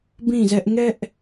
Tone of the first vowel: falling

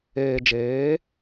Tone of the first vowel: low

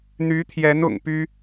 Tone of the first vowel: rising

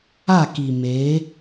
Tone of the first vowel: falling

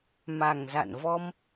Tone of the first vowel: low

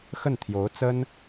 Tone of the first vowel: falling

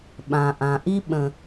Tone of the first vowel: low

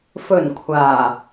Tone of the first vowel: low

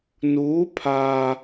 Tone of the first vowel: rising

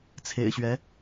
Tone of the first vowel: low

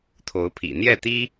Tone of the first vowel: rising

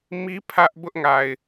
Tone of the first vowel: high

